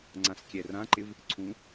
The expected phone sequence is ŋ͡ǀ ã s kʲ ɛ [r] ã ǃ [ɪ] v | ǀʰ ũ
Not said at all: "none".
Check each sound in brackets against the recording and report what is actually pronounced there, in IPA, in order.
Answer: r, ɪ

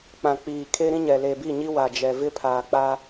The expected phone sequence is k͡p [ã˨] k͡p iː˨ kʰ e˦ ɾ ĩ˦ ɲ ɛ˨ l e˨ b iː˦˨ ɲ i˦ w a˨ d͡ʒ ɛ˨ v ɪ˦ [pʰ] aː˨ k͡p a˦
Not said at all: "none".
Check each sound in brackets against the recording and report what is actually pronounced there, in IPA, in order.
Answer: ã˨, pʰ

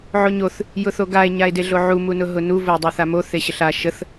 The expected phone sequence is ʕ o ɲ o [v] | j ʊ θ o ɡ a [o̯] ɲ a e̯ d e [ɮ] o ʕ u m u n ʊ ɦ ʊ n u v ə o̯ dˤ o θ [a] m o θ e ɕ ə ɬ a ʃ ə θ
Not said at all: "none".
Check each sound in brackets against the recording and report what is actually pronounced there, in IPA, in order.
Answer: θ, e̯, ɮ, a

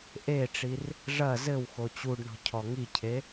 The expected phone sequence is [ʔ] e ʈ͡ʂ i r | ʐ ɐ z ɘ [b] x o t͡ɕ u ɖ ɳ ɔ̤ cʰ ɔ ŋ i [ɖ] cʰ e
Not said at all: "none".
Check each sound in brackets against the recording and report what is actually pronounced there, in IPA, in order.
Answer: ʔ, w, none

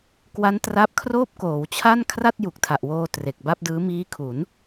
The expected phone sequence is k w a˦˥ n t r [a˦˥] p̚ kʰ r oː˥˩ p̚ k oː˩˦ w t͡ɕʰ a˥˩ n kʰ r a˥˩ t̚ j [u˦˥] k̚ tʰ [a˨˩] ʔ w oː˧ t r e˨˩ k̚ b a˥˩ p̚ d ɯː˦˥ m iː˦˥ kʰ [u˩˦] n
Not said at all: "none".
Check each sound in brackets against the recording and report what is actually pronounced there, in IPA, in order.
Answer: a˦˥, u˨˩, a˨˩, u˩˦

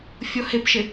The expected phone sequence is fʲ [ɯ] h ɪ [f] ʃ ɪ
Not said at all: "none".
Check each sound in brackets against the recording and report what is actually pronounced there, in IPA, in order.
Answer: ʊ, p

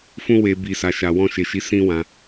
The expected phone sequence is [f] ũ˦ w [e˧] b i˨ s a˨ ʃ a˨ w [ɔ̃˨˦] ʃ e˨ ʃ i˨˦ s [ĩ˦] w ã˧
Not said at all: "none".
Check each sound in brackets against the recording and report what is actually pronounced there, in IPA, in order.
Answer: f, e˧, ɔ̃˧, ĩ˦

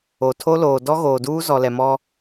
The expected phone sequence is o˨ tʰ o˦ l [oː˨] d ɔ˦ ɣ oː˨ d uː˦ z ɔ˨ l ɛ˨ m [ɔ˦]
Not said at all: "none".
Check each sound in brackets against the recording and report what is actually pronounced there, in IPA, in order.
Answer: oː˨, ɔ˦

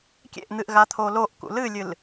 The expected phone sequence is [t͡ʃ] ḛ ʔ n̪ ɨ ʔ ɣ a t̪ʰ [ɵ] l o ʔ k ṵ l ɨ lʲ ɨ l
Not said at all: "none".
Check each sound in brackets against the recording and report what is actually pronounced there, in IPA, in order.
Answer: kʲ, o

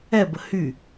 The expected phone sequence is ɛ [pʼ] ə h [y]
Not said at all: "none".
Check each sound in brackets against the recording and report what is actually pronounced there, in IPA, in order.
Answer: b, y

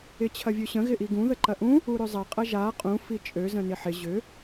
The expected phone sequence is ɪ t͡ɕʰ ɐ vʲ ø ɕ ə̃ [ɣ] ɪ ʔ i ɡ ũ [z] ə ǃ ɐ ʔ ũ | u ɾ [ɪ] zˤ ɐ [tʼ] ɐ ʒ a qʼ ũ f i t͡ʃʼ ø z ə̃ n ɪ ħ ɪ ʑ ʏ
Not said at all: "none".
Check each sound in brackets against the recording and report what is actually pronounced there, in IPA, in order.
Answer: ɣ, ð, ʏ, qʼ

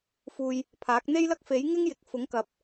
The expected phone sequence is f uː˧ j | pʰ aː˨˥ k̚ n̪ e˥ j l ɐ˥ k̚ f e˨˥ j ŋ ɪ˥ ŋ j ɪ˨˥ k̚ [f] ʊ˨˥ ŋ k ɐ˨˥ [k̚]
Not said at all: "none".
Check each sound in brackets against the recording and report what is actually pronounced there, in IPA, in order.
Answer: f, p̚

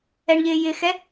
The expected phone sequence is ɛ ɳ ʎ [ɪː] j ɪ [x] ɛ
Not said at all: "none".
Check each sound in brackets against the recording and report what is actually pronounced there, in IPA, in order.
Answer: ɪː, x

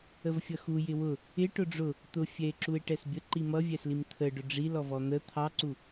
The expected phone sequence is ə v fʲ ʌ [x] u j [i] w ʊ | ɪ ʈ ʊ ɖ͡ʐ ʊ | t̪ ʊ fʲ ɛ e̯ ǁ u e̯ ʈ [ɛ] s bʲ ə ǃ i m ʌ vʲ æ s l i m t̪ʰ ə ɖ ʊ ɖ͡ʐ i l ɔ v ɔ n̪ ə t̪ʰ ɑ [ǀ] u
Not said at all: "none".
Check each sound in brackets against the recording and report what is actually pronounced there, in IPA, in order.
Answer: x, ɪ, ɛ, ǀ

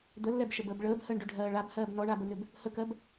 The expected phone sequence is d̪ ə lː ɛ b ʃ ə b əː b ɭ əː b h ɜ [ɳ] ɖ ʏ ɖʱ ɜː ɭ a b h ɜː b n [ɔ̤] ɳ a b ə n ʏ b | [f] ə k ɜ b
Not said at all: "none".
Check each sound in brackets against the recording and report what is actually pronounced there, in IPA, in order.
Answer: ɳ, ɔ, h

